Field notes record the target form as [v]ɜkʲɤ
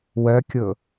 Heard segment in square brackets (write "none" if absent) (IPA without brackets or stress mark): w